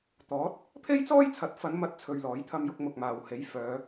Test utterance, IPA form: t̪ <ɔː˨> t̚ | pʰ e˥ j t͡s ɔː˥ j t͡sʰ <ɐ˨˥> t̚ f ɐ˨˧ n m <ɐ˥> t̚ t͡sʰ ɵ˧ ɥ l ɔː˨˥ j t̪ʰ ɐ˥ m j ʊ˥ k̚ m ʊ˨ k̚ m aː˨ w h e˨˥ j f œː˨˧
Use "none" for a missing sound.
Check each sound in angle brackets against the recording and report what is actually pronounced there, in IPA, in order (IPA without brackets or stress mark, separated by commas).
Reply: ɔː˨˥, ɐ˨˥, ɐ˥